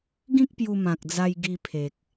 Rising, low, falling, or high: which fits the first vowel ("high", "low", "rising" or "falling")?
high